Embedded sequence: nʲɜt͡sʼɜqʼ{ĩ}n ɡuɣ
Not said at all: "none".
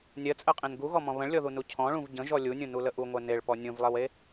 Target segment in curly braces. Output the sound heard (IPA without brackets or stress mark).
ẽ